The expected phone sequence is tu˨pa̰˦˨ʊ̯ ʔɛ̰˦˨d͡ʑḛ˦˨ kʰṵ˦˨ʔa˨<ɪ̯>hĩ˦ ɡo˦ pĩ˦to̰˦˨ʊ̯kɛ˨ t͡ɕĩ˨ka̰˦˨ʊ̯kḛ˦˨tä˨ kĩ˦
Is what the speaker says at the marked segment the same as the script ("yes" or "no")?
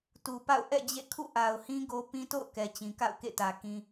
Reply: no